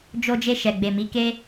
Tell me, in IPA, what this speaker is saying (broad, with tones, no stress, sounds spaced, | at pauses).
d͡ʒ o˧ d͡ʒ e˧ ʃ ɛ˨ ɡ͡b e˨ m i˨˦ k e˦